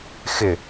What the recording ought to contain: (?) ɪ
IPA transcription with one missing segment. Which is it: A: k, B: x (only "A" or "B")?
B